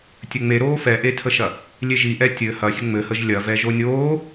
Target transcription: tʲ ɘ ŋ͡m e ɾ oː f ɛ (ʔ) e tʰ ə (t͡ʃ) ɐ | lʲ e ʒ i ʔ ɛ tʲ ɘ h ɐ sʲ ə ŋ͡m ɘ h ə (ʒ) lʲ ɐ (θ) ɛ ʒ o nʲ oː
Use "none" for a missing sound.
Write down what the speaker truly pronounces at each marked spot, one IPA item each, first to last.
ʔ, ʃ, ʒ, v

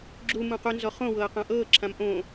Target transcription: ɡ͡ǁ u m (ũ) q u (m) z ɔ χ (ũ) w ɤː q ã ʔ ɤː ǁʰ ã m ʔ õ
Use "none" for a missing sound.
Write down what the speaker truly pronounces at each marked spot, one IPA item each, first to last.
ũ, n, õ

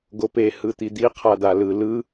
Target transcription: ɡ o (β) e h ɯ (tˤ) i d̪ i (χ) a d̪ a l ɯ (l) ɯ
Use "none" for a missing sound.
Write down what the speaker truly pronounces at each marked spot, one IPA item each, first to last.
p, t̪, qʰ, l

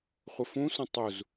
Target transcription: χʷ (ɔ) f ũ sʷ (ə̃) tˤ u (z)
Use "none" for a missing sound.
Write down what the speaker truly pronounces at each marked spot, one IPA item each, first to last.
ə, ə̃, z

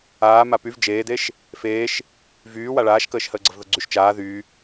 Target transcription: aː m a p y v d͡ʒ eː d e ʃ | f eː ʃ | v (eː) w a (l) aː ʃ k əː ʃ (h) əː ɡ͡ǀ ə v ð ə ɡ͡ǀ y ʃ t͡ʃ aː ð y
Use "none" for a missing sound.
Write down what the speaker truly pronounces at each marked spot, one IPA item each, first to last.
yː, ɭ, h

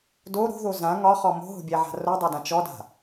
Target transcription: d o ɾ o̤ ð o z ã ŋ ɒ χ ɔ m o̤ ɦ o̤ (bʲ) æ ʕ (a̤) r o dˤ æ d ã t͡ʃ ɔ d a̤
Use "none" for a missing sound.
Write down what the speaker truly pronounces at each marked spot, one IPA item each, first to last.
bʲ, a̤

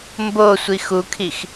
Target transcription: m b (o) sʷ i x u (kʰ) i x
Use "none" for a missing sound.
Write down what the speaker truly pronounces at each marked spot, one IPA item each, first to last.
o, kʰ

